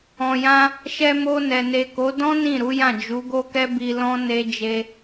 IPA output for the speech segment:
ɔ̃˨ j ã˧ | ʃ ɛ˧ m o˧ n ɛ˨ n e˨ k o˨˦ d ɔ̃˦ n ĩ˦˨ ɾ u˨˦ j ã˦˨ d͡ʒ u˨˦ ɡ o˦ k ɛ˦ b i˧ l ɔ̃˦ n e˦ d͡ʒ e˦

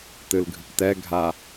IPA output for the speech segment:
t ɨ l ɡʱ ɨ k t ɛ ɡʱ a

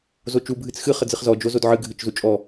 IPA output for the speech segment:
z o t͡ʃ u bʱ ɨ t͡s x ɨ χ ə d͡z ɨ χ z ɔ d͡ʒ o z o d ʕ ɨ ɡʱ ɨ t͡ʃ z u t͡ʃʼ ɔ

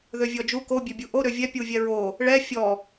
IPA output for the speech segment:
ð ø vʲ ɔ d͡ʒ u k o bʲ ø bʲ u ʔ o ɾ ø vʲ ɛ pʲ u vʲ ɛ ɹ o | ɭ ɛ fʲ ɔ

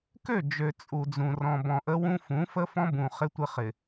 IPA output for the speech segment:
k ø˦˨ d͡ʒ ø˨ t͡sʼ u˨ d͡z ũ˨ r ɔ̃˨ b ɔ̃˨ ʔ ə˦ w ũ˦ f ũ˨˦ f ə˦ f ɔ̃˦ b ũ˨ χ ɪ˦ tʷ ɪ˦ χ ɪ˨

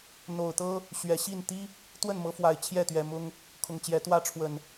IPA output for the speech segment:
n̪ o˨˩ ʊ̯ t̪ ɤ˦ | ɕ ɥ ɛ˨˩ ɕ i˥˨ n t̪ i˦ | t̪ w ə˥˨ n m ɤ˨˦ f w a˨˩ ɪ̯ t͡ɕʰ j ɛ˥˨ t̪ ɥ ɛ˨˩ m ʊ˦ ŋ | kʰ ʊ˨˩ ŋ t͡ɕ j ɛ˨˦ t̪ w ä˥˨ ʈ͡ʂʰ w ə˨˩ n

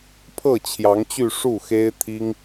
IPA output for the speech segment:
pʰ ɤ˥˩ t͡ɕʰ j ɑ˧˥ ŋ t͡ɕ y˥˧ ʂ u˥˩ x e˥ ɪ̯ t̪ʰ i˥ ŋ

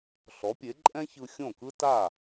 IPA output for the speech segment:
ɬ ɔ˩˥ pʲ e˩˥ ǃʼ ɛ̃˥ ç ɯ˧ xʲ õ˥˩ k ɯ˥ t a˥˩

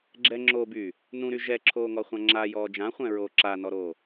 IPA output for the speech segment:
ɡ͡ǁ ɛ ŋ͡ǁ o b yː | n ũ ɾ y ʒ ɛ ǁʰ oː ŋ ɔ χʷ ã ŋ͡ǁ a j ɔː d͡ʒ ã χʷ ɛ̃ ɹ oː ǁ a n ɔ ɾ oː

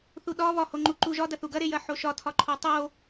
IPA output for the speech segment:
θ u ɗ ɒ β ɒ h o ŋ͡ǃ u ǃ u ʒ ɒ d ɐ θ u ɡ ɐ ɾ e j ɐ ħ o ʃ ɒ tʰ ɒ ǃʰ o tˤ o

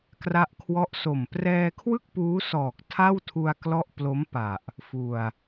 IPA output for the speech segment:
k r a˦˥ ʔ kʰ w ɔ˦˥ ʔ s o˨˩ m p r ɛː˧ kʰ w ɯ˥˩ k̚ p uː˦˥ s ɔː˨˩ k̚ tʰ a˥˩ w tʰ u˧ a̯ k l ɔ˦˥ ʔ p l o˦˥ m p a˨˩ ʔ | f u˨˩ a̯

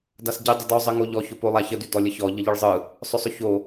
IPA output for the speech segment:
d a s ɟ i dˤ ə d ɔ zˤ ə ŋ o ʎ ɔ ç ʊ p o lˠ a ç ə d y d ɔ lʲ ə ç ɔ ʎ ə ʎ ɯ ɭ zˤ ɯ | sˤ ʊ sˤ ʊ ç o

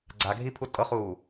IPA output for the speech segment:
ɡ͡ǀ a ɡʱ i pʰ u tʼ ɤ χ uː

